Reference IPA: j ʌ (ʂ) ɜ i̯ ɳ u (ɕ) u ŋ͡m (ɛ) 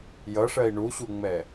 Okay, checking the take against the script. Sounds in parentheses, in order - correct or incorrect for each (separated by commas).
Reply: correct, correct, correct